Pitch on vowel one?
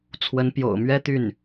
rising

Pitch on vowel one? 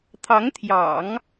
rising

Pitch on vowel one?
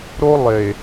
high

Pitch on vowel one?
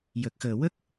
low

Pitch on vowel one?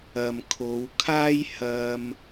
low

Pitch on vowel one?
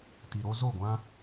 low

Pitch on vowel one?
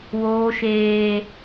high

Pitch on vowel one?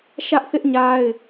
high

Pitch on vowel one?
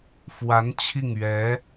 rising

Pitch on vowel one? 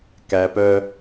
low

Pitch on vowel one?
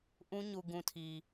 high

